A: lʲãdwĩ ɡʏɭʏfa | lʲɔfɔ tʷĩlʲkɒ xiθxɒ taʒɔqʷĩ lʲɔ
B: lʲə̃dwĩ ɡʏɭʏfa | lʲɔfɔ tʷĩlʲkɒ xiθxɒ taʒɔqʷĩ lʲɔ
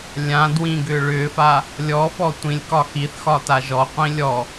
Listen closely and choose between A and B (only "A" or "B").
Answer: A